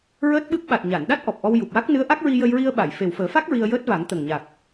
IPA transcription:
ɹ əː˦˥ t̚ ɓ ɨ˦˥ p̚ ɓ a˨˩ t̚ ɲ a˨˩˨ n ɗ a˦˥ t̚ ʔ ɔ˨˩ p̚ ʔ ɔ˧ w j u˨˩ p̚ w a˦˥ k̚ n ɨ˧˥ ə̯ ʔ a˦˥ k̚ ɹ i˧ j ə˧ j ɹ i˧ ə̯ ɓ a˨˩˨ j f e˨˩ w f əː˨˩˦ f a˦˥ k̚ ɹ i˧ ə̯ j əː˦˥ t̚ v a˨˩˦ ŋ t̪ ə˨˩ ŋ ɲ a˨˩ k̚

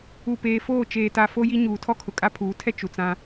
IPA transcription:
u˨ p eː˨ f oː˦˨ t͡ʃ eː˨ t a˨ f o˦ j i˦ ɲ uː˨ tʰ ɔ˦ kʰ ʊ˨ kʼ a˦ pʰ uː˨˦ tʰ ɛ˦ t͡ʃ u˨ t͡s ã˦

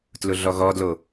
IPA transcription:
t l ʊ ɮ ɔ ɣ ɔ d l o

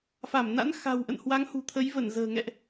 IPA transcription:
f a˧˩ m n a̰˧˥ n x a̤˨˩ w ʔ ə̰˧˨ n h w a˨˦ ŋ h ṳ˨˩ t̪ʰ ə˨˦ j v ə˧˩ n z ə̤ː˨˩ ŋ ɛ̰˧˨ ʔ

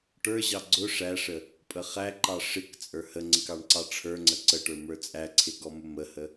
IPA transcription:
ʈ ə˞ ʑ ɑ ɡ͡ǀ ʊ ʂ æ ʂ ə | pʼ ə χ æ ǃ ɑ ʂ ɪ k t͡sʼ ə˞ h ə ŋ͡ǀ ɪ k ɑ ɳ ǀ ɑ ʈ͡ʂʰ ə˞ ŋ͡ǀ ə ǀ ə ʈ ə˞ m ə˞ t͡sʼ æ ǀʰ ɪ ɡ ɔ m ʊ m ə h ə

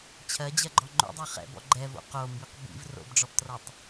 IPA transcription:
t͡ɕʰ ɜ d͡ʑ ɜ ɡ͡ǃ ɔ ŋ͡ǃ o̰ dˤ ɜ χ ɛ̰ b ɔ̰ ɡ͡ǃ ɛ v o̰ q o m b i q b ḭ v r o̰ b ɖ͡ʐ ɔ b t r ʌ tˤ

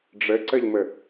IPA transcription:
ɖ͡ʐ ɘ ǀ ɘ ʎ m ɘ

